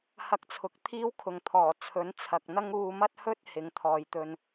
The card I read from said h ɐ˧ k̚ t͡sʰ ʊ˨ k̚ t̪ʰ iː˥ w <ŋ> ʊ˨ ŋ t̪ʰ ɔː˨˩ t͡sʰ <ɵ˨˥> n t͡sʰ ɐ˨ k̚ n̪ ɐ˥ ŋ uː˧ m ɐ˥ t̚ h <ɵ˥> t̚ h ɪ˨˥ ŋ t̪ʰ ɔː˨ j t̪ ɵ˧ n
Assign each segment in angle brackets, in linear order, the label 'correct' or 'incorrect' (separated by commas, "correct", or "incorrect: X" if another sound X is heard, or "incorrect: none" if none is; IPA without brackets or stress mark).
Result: incorrect: kʰ, correct, correct